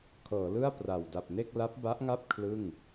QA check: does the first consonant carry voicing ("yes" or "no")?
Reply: no